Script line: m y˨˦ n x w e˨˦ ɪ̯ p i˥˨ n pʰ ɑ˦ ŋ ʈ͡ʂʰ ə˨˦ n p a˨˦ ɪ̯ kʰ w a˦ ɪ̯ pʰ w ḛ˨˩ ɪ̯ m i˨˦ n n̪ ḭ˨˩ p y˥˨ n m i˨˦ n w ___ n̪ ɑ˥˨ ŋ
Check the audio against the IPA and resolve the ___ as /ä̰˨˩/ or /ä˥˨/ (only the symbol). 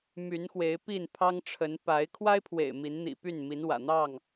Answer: ä̰˨˩